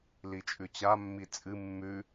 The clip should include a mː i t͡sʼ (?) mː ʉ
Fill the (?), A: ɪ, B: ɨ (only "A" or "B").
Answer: B